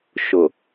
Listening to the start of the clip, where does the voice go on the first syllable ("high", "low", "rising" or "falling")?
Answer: low